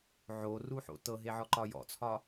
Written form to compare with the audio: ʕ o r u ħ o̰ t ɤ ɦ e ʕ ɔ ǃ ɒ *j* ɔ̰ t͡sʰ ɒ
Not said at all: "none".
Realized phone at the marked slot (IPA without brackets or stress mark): j